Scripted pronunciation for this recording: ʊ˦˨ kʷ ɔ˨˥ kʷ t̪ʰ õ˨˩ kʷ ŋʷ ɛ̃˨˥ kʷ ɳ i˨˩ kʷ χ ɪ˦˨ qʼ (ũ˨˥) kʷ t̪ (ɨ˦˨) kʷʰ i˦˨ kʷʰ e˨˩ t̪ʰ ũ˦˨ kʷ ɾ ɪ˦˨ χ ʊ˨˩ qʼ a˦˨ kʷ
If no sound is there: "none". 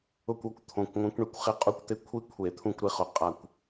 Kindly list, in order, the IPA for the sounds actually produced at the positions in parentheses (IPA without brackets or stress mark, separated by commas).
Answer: u˨˥, ɪ˦˨